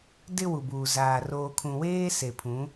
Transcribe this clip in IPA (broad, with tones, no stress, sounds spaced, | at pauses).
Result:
d ɪ˦ w u˨ b uː˨ z aː˨ r oː˨ kʰ ũ˨ w eː˦ s e˨ pʰ ũ˨˦